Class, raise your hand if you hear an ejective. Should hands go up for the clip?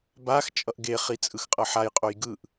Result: yes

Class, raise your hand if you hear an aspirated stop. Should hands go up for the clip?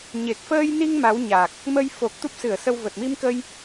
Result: no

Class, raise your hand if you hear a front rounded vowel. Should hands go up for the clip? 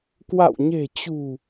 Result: no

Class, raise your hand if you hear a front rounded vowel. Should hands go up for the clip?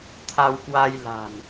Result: no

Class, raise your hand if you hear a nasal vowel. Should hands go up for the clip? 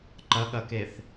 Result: no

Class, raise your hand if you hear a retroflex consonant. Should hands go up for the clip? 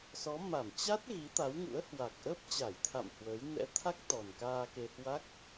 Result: no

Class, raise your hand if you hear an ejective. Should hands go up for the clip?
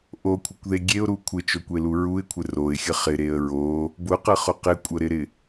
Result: yes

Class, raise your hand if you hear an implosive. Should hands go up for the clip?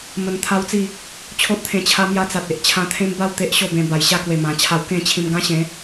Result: no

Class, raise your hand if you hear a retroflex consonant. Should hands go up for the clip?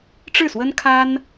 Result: yes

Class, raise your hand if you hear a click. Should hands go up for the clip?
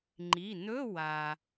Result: yes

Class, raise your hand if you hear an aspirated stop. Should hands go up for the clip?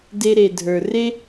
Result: no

